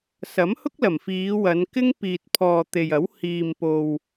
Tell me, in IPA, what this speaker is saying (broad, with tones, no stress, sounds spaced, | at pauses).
s ɐ˨˥ m h ʊ˥ k̚ l ɐ˨˩ m f iː˨˧ w ɐ˨˧ n k ɪ˥ ŋ p iː˨ t̚ pʰ ɔː˨ t̪ e˨ j ɐ˨˥ w h iː˨ m p o˨ w